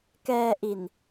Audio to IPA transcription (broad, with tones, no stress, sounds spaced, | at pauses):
k ɛː˧ ʔ i˨˩ n